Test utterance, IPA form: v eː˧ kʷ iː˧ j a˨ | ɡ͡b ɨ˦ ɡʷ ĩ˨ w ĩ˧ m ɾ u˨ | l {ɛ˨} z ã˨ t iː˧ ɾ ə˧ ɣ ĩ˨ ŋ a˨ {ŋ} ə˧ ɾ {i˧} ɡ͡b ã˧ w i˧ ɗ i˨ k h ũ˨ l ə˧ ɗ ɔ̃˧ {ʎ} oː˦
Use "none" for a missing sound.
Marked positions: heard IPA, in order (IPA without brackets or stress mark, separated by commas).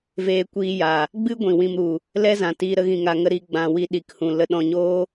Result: ɛ˦, ŋ, i˧, ɲ